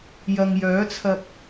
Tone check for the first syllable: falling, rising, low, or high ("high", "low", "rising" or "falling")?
low